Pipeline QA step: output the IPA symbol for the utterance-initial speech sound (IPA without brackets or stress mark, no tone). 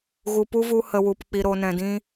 ɣ